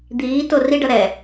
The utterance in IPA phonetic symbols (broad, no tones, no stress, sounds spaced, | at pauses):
d̪ iː t o r i ɖ ʌ ɾ ɛ